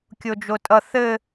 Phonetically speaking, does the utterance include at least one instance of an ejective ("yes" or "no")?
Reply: yes